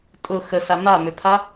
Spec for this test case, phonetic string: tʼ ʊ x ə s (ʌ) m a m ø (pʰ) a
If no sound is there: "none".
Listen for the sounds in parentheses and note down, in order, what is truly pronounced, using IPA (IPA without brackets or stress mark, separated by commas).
a, pʰ